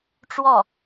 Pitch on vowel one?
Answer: falling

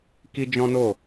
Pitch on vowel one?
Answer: high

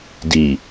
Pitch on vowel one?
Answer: low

